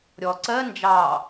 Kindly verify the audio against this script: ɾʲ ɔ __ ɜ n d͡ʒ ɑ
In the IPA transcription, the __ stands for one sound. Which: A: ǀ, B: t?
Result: A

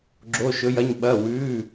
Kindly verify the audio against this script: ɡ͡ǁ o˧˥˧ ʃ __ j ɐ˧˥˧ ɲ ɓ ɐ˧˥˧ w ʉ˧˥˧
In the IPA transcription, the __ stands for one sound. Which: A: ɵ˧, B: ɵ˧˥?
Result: B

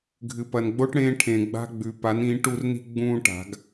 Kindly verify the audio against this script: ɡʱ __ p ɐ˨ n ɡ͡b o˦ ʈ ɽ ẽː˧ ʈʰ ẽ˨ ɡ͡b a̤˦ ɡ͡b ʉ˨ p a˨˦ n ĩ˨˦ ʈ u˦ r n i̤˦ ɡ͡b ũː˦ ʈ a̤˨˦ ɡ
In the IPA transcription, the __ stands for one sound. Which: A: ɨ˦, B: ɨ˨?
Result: B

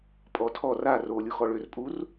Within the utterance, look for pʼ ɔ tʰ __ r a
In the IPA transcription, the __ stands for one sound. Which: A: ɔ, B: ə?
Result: A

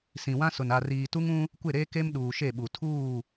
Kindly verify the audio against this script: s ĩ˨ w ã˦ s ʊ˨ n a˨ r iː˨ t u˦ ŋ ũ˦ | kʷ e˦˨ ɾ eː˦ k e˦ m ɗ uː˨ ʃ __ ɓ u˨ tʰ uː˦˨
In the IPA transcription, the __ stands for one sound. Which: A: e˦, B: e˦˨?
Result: B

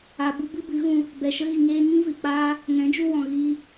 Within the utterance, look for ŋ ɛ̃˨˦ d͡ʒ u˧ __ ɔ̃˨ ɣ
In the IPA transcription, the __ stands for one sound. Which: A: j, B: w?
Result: B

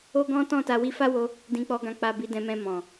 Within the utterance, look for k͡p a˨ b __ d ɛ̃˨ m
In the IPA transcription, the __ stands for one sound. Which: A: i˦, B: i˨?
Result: B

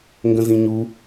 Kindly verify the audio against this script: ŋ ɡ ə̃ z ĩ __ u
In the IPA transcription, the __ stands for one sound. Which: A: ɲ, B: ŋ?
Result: A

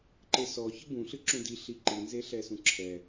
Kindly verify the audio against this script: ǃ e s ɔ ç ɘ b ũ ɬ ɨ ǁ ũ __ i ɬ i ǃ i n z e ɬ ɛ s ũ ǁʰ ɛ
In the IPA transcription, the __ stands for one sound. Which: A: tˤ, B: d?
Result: B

